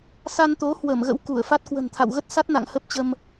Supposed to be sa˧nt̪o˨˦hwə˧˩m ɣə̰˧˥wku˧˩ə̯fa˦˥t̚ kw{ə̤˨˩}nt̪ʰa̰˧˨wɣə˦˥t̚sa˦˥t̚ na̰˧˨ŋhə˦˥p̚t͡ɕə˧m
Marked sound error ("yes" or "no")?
no